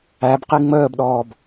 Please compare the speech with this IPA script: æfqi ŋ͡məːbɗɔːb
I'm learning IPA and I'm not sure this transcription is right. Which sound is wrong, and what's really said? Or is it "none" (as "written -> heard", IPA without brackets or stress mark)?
f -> b